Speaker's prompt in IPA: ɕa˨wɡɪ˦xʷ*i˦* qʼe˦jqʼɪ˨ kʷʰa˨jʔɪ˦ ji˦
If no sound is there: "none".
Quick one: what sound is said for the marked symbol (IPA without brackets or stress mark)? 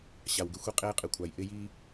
i˦